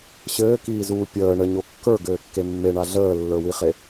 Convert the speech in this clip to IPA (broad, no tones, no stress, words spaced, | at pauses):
ɕɘːkiːzuː pʲəː ɳəɲo kːə˞ɡɘːkːe mːeɳa ɮəːlːə˞wiχe